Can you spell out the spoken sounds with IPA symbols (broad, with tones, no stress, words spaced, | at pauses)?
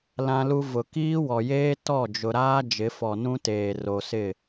lã˦lu˦ vʊ˨ kiː˦wɔ˨jeː˦ tɔ˦˨d͡ʒʊ˨ɾaː˦ d͡ʒɪ˨˦fɔ˨ nũ˦teː˨ ro˨sɪ˦˨